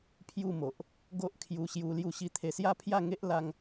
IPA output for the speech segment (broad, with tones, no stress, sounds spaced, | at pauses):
pʰ j u˥˧ m o˨ ʔ | ɡ o˦ ʔ kʰ j u˧ ɕ j u˧ l j u˥˧ ɕ i˧ t̪ʰ e˧ s j a˦ pʰ j a˥˧ ŋ e˦ ʔ l a˦ ŋ